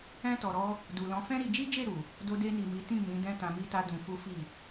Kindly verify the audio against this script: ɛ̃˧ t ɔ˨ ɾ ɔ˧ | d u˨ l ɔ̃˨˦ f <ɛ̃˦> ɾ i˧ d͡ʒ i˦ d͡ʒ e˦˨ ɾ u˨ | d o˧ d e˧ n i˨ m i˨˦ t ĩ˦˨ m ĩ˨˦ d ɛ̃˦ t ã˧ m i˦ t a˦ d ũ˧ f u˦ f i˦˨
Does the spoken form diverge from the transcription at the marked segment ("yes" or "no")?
no